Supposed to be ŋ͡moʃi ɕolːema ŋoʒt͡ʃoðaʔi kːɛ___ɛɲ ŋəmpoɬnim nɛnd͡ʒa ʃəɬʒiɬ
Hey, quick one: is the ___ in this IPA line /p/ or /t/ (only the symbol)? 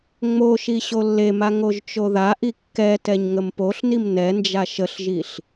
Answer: t